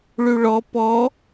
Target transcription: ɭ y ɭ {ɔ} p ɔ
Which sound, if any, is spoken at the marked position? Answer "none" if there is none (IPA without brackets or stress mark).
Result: ɔ